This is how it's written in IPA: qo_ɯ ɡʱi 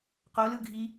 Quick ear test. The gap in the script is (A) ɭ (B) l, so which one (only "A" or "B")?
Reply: B